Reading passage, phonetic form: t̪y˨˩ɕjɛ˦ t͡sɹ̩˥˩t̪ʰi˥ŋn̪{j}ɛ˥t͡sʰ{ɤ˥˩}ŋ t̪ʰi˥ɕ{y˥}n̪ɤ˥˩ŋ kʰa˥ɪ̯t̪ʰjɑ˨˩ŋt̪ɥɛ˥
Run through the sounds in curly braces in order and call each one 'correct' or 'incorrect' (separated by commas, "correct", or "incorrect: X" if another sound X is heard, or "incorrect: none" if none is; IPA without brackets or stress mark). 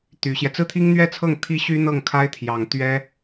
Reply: incorrect: ɥ, correct, correct